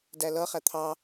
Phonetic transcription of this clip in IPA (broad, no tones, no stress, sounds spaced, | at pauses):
d æ l ʌ χ æ t̪ʰ ɑ